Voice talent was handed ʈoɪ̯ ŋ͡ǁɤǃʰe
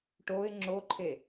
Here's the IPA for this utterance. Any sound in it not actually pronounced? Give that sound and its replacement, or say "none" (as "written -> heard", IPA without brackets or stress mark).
ɤ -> o